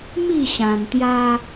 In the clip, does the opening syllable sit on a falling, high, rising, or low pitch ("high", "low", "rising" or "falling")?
falling